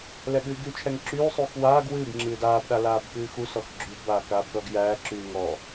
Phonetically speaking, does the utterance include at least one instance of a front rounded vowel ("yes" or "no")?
yes